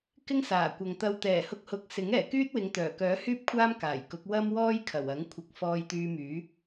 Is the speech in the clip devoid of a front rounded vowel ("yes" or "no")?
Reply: no